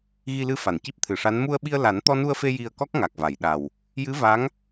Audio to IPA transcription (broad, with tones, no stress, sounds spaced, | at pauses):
ɣ i˧ l ɨ˧ f a˨˩˨ n c i˦˥ p̚ t̪ʰ ɨ˨˩ ʂ a˧˥ n m u˧ ə̯ ɓ i˧ ə̯ l a˨˩˦ n t̪ ɔ˧ n u˧ ə̯ f e˧ j i˧ ə̯ k ɔ˦˥ k̚ ŋ a˨˩ k̚ v a˨˩˨ j ɗ a˨˩ w | j ɨ˧˥ v a˧˥ ŋ